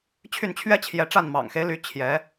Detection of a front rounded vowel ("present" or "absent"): present